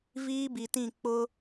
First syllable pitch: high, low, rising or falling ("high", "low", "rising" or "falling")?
high